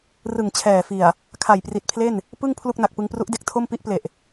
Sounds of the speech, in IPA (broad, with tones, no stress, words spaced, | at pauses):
rɯ˨˩ŋt͡ɕʰɛː˨˩fi˨˩a̯ | kʰa˨˩jpri˨˩t̚pʰle˥˩n | pɯ˥˩ŋ pʰlu˥˩k̚na˨˩k̚pɯ˧ŋpru˦˥ʔ de˦˥k̚tʰo˥˩mpi˦˥ʔple˨˩ʔ